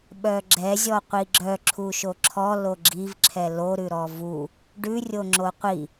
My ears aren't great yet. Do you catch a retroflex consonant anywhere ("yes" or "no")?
yes